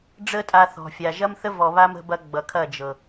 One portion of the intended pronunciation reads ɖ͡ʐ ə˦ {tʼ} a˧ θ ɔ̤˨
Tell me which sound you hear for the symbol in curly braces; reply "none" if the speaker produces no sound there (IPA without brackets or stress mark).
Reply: tʼ